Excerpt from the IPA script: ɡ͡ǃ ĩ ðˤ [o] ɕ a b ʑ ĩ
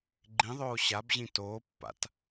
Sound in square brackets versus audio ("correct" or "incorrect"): incorrect